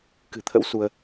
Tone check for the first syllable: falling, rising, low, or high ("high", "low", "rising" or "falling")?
low